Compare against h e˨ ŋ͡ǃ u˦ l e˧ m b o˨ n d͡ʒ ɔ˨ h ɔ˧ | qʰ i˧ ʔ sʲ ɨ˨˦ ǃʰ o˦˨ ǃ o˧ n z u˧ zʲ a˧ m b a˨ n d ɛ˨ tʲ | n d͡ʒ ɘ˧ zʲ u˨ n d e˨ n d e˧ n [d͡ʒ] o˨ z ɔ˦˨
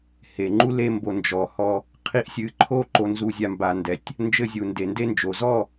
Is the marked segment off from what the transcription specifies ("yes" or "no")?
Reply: no